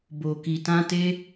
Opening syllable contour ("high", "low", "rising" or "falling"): low